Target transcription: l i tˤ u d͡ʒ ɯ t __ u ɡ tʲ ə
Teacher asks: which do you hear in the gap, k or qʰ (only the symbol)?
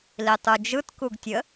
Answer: k